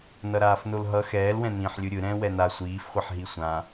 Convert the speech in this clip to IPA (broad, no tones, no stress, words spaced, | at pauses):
nʌɾaːfnolɦʌ xɛːlwɛ̃nĩːħ lʲɯɾʲɯɾɛ̃ː wɛna sʷiːfχʷɛħɦi sʷã